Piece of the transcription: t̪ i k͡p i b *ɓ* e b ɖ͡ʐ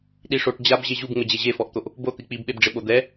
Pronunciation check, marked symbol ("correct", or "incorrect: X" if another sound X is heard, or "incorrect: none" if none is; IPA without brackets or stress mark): correct